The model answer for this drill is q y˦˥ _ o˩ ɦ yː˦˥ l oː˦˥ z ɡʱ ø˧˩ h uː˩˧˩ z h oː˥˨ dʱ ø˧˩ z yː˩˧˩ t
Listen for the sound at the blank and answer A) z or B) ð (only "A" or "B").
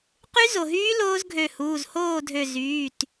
A